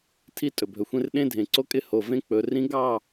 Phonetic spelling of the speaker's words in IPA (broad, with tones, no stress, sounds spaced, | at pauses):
tʰ i˦ tʼ ɵ˨ bʱ ɵ˨ xʷ ẽ˦ r ɗ ẽ˦ dʱ ẽ˨ ǀ o˦ kʼ ɪ˦ h o˨ v ẽ˦ k͡p ɵ˨ r ĩ˦ ɡ ɑ˦˨